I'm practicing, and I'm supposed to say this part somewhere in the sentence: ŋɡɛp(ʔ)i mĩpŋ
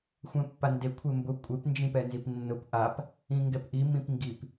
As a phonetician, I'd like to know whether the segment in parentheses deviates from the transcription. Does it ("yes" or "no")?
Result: no